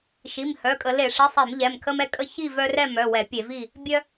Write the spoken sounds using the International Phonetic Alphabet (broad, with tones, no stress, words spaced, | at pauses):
ʃi˩˧˩mhœ˩˧˩kʼə˧˩˧le˧˩˧ ʂi˩˧˩sˤe˧˩˧m ʎɛ˩˧˩mkʰə˦mɛ˥˨kʼə˥˨ çi˥˨vœ˦rɛ˥˨ mœ˩˧˩wɛ˧˩˧pʲe˧˩˧vi˥˨ | bʲœ˦